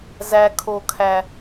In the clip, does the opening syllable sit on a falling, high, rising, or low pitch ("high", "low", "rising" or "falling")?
low